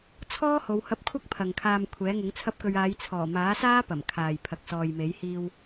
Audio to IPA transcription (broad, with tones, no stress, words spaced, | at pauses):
t͡sʰɔː˥ ho˨˧whɐ˧p̚kʷʰɐ˥k̚ pʰɐ˨ŋkʰaː˧m kʷʰɛː˨˥ŋʊ˨˥ŋ t͡sʰɐ˥p̚kɵ˧ɥ aː˨˧jt͡sʰɔː˨˩maː˨˥saː˥ pɐ˨˩m kʰaː˨j pʰɐ˨k̚sɔː˨jme˨˥j hiː˧w